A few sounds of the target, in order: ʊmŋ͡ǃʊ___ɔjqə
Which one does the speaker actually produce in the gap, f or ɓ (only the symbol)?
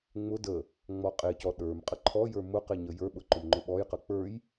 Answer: ɓ